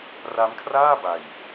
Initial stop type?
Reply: aspirated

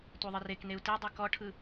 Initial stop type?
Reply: plain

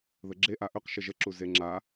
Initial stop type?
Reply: click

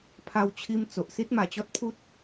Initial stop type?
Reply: aspirated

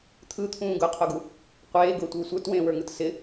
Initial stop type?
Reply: aspirated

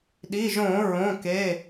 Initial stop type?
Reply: implosive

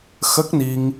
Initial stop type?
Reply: plain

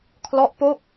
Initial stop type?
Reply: aspirated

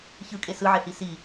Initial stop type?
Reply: ejective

